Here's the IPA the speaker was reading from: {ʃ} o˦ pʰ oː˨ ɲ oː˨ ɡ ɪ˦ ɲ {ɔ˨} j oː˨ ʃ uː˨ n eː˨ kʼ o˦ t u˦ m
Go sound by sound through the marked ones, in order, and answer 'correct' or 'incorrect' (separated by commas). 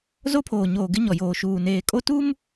incorrect, correct